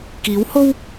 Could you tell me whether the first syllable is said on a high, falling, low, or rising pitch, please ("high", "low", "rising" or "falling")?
rising